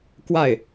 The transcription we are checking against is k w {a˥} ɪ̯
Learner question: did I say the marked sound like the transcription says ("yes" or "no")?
no